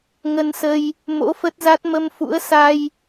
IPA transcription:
ŋ ə˧ n s ə˧ j | m o̰˧˥ f ə˦˥ t̚ z a˦˥ t̚ m ə˧ m f ṵ˧˥ ə̯ s a˧ j

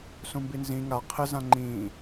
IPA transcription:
s ũ m b i n z ĩ ŋ a qʰ ɪ z ã ŋ͡ǃ ĩː

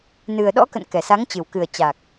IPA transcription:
n ɨ˨˩ ə̯ ɗ ɔ̰˧˥ k ə̰˧˨ n k ɛ˨˩ s a˨˦ ŋ t͡ɕ ɨ˨˩ w k ɨ˨˩ ə̯ t͡ɕ a˨˩ k̚

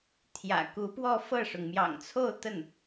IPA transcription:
t̪ʰ j ä̰˨˩ k u˧˥ p w ɔ˥˧ f ɤ˥˩ ʂ ʊ˩ ŋ m j ɑ̰˨˩ ŋ t͡sʰ o˥˧ ʊ̯ t̪ ə˥˩ n

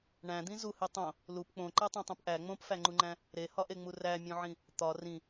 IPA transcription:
ɳ æ̃ d̪ ĩ z u h i tˤ õ | l u p k͡p õ ǃ æ tˤ õ tˤ õ p ʔ æ ŋ͡m õ p f æ ŋ͡ǃ u ŋ͡ǃ æ̃ | ɾ e h ɒ ʔ e ŋ͡m u r æ mʲ õ ʕ ĩ | t̪ ɒ r ĩ

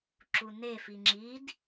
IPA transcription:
ǁ u n e f i ŋ͡ǁ i d

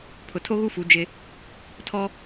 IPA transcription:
pʰ ʊ˨ tʰ o˦ ɣ u˦ f u˨˦ d͡ʒ ɪ˦ | tʰ ɔ˦

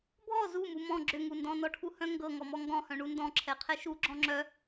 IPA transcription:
bʱ ɔ z u m u m ɔ̃ ɡ͡ǁ ʏ ŋ u n d ɔ̃ n ɔ ʈʰ u h œ̃ ŋ ɡ ɤ ŋ ɔ m ɔ ŋ ɡ ɔ̃ h œ̃ ɳ u n d ɔ̃ ǁʰ ɛ qʰ ɛ ʃ u ɡ͡ǁ ɔ̃ ŋ͡ǁ œ

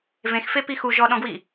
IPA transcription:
v ẽ x f e p i x u ʒ ɔ ɗ ɔ̃ ɡ w i

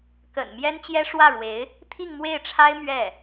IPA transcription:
k ə̰˨˩ n m j ɛ˥ n t͡ɕ j ɛ˥ ʂ w ä˥˩ ɻ w e˧˥ ɪ̯ | t̪ʰ i˥˧ ŋ m w e˥˩ ɪ̯ ʈ͡ʂʰ a˥ ɪ̯ m ɥ ɛ˥˩

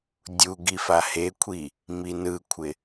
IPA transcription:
dʲ u ɡ i f a h e kʷʰ i | m i n ɯ kʷʰ ɪ

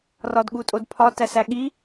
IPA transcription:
r ɒ d ɠ u tʼ o d pʰ ɒ t æ s æ ɠ i

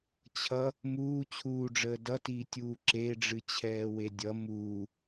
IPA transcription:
t͡ɕʰ ʌ | m uː t͡ɕʰ uː ɖ͡ʐ əː d ʌ t iː tʲ uː ǁ e ɖ͡ʐ ɨ t͡ɕʰ ɛː w e dʲ ʌ m uː

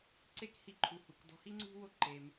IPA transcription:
ǀ e˥ k h i˧ ǃʰ u˩ h u˩ k d ɔ̤˧ h i˥ ŋ͡ǀ ṳ˥ w o˥ ǃ e˩ m

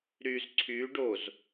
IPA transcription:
ɾ y z ǀʰ y ɖ o z

